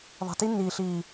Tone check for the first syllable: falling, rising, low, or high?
low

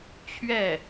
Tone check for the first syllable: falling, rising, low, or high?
falling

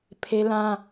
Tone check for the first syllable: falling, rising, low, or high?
high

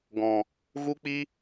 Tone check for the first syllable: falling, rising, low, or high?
low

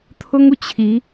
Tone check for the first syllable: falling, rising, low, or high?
high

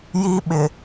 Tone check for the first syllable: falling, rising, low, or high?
high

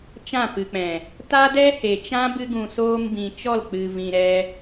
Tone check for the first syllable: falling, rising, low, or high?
falling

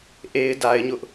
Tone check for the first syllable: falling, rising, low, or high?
high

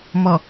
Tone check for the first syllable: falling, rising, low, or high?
low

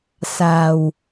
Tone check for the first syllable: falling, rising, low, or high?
low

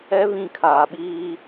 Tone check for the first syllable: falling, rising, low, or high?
high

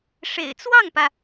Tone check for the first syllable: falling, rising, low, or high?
low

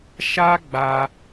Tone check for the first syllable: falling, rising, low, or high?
high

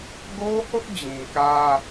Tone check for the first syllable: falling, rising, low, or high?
high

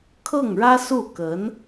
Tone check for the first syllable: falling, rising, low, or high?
falling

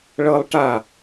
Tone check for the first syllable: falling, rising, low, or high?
high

